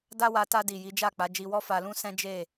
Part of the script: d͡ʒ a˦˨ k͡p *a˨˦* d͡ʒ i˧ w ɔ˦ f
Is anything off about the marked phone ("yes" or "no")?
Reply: no